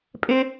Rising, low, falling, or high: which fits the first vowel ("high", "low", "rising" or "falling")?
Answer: high